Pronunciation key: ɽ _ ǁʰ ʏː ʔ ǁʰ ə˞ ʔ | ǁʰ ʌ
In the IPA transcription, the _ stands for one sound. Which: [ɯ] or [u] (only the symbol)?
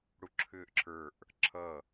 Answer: u